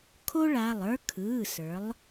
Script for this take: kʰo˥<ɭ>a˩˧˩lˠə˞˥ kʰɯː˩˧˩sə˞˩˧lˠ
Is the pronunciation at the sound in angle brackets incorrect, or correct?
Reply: correct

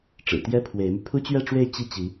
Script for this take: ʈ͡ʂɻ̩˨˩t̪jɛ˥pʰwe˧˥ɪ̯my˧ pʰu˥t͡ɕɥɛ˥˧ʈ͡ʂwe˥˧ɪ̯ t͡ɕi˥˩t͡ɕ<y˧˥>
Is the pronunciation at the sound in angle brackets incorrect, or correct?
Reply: incorrect: i˧˥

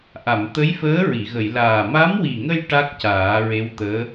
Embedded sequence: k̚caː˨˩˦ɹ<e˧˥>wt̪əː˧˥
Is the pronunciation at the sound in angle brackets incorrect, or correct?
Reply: correct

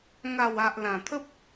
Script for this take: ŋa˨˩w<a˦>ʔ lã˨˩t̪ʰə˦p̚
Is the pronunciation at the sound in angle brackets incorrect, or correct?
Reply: incorrect: a˨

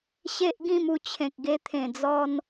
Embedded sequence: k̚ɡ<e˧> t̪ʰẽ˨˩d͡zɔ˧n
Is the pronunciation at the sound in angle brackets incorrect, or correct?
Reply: correct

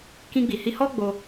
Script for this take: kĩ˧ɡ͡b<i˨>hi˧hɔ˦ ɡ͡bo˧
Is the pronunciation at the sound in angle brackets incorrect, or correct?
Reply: correct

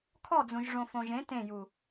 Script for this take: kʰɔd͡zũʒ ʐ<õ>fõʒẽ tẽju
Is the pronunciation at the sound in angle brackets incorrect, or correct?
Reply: correct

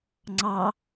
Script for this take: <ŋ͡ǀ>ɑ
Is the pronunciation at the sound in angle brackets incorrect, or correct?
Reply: correct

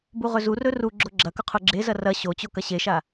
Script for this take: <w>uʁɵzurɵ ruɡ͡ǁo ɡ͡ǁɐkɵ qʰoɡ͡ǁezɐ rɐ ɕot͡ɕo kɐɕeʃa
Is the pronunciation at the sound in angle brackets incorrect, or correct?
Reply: incorrect: b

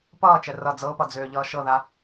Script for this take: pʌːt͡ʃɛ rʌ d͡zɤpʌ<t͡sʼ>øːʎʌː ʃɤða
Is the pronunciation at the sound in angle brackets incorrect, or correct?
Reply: incorrect: d͡z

